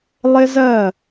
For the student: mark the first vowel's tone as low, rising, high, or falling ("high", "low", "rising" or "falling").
high